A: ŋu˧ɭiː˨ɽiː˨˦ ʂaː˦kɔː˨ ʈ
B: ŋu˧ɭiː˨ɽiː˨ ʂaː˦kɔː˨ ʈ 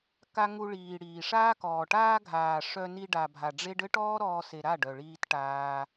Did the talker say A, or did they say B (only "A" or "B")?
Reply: B